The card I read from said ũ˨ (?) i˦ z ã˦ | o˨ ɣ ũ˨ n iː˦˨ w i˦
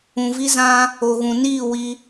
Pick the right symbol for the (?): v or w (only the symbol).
v